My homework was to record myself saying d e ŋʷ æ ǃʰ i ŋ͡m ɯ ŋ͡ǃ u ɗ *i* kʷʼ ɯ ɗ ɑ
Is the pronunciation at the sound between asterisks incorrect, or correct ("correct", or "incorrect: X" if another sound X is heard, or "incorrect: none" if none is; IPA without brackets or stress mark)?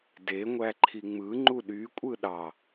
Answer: incorrect: y